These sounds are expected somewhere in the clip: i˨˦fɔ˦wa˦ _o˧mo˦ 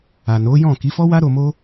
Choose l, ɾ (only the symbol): ɾ